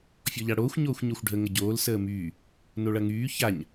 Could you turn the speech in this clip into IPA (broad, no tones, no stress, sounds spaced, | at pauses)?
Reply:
fʲ ɔ ʎ a ɽ oː xʷ ɲ oː xʷ ɲ o xʷ ɖʱ ə ŋ ə ɟ oː l s əː m yː | n o ɭ ɐ ŋ yː ç a ɲ